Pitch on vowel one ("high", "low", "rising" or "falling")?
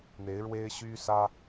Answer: rising